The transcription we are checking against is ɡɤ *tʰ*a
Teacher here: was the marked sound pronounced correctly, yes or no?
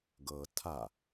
yes